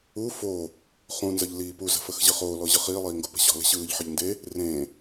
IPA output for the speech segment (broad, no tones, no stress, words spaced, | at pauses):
u fo | χũnzəʎ liːpuzə̤ fəxʑɯχoːlɔ ʑɯχiːlˠiː ŋɡopə̤ɕɔ̤lə̤ ɕɯːʎħəʎ nde | rẽ